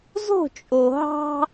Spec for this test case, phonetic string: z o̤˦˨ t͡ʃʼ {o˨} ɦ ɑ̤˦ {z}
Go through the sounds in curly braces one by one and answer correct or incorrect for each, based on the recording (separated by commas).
correct, incorrect